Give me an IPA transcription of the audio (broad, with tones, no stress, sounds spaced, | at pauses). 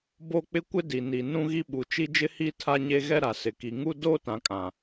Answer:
b o˦ k͡p ɪ˦ kʷ ɪ˦ d i˨ n i˨ n ũ˦ ɣ i˦ ɓ u˨ t͡ʃ i˦ d͡ʒ ɪ˦ h i˦ tʰ a˦ ɲ e˦ ɣ ɛ˦ ɾ a˨ s ɪ˨ k i˨ ŋ u˦ d oː˦ t ã˨ kʼ ã˨